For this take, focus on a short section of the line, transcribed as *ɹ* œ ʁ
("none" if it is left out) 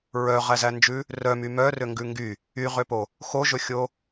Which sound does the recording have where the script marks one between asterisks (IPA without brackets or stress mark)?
ɹ